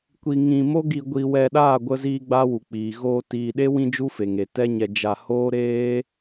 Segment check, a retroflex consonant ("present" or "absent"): absent